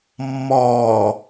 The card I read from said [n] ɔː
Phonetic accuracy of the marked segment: incorrect: mː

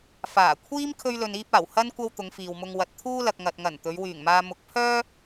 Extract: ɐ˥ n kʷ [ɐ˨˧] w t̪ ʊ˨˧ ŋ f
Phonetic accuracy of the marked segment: incorrect: ɐ˥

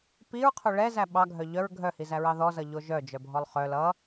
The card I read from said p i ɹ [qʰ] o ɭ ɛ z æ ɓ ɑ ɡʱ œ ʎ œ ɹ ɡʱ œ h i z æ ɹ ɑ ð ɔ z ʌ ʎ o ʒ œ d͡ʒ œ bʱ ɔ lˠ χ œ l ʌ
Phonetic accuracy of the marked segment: correct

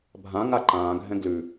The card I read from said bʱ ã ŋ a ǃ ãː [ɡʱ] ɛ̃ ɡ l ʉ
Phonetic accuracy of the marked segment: correct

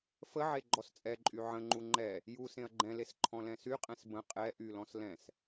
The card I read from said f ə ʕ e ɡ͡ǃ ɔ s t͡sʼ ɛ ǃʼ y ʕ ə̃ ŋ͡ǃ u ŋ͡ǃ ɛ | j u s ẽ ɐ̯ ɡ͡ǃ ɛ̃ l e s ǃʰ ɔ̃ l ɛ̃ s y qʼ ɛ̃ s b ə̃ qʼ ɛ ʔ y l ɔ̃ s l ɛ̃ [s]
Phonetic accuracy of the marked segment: correct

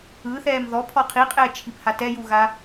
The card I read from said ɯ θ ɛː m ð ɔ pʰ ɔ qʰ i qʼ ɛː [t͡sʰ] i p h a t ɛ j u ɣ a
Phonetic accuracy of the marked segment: incorrect: t͡ʃʰ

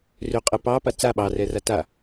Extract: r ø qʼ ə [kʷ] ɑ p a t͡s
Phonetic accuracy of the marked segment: incorrect: p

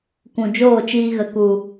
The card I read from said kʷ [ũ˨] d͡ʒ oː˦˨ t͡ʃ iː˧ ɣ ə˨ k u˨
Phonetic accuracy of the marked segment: correct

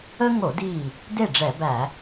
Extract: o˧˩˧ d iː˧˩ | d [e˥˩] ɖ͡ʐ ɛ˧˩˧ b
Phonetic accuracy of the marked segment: correct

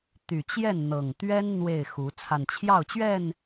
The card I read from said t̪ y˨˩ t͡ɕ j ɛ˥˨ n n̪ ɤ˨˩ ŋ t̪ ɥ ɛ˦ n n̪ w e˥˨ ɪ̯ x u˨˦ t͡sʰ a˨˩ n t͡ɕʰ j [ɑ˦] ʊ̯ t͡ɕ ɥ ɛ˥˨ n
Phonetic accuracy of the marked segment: incorrect: ɑ˥˨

